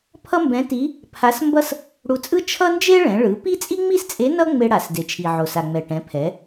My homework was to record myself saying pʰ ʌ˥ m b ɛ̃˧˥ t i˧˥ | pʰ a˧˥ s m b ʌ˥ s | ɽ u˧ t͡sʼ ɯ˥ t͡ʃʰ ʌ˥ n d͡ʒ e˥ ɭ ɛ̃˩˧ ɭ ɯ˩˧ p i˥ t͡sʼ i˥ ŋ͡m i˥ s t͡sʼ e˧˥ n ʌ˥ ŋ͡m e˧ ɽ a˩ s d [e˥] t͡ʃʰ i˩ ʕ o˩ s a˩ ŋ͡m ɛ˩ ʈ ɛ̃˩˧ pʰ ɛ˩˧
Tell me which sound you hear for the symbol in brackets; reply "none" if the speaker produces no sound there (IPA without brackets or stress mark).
e˩